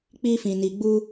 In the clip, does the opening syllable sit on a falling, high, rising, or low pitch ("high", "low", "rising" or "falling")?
high